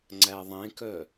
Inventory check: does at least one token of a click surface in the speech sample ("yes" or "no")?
yes